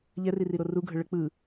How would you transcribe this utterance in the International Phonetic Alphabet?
ʎɛririɾo ruɡʱə ɭə k͡pɯ

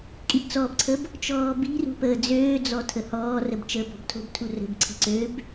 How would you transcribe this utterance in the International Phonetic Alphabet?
kʼibt͡sɔbǀʰəb | t͡ʃɔːbi̤rṳ pəːd͡zøːd͡zɔ tʰəhɔːrəb t͡ʃəːbɔ̤btʰo̤btʰu rə̤bǀʰi̤ ǀøb

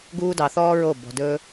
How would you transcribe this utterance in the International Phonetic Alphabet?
ɡuː˦dɑ˧ θɔː˦ɹo˦˨ bɔ̤˧dɵː˦

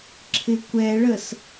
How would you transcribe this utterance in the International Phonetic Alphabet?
ǁʰɪkʷɛɭəs

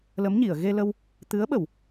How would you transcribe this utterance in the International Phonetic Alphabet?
lə˧˥mɲi˨˩˨ə̯ ɣe˧lə˧w | t̪ɨ˧˥ə̯ɓə˨˩˨w

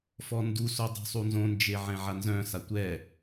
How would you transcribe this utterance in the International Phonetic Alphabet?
fɔnduso dˤṳsˤunzõnd͡ʒe ʕɛ̃ʕanzœ̃sa tʷɛ

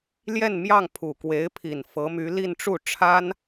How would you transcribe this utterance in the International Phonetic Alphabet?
ljɛ˥˧nmjɑ˥˩ŋ pʰu˨˩ kwe˧˥ɪ̯pʰi˨˩n fɤ˧˥my˧˥ li˥˧nʈ͡ʂu˥˩ ʈ͡ʂʰa˥n

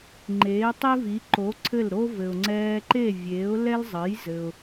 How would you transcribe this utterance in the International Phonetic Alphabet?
ŋ͡ǃeː˩˥tˤe˥vi˩˥ ǃo˩˥ ǀʰɘ˥˩lɾo˥ vɘ˩ʊ̯ŋ͡ǀɛː˧ǃe˥˩ vʲeː˩˥ʊ̯ lɛ˥l zˤɘ˩˥j zɘ˩ʊ̯

